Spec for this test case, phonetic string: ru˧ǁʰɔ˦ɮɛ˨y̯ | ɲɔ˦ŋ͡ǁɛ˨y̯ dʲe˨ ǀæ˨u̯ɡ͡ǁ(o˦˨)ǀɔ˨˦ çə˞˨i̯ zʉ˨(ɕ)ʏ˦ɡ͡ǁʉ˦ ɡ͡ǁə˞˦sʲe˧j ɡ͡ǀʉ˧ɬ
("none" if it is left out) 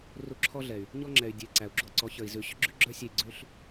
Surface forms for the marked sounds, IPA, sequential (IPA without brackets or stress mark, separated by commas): o˧, ɕ